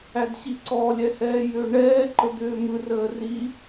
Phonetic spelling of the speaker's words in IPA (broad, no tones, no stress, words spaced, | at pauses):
ædɕiǀɔ lʲɛhɛːjʏːɳɛː ǃəd̪ʏːmɯr əːri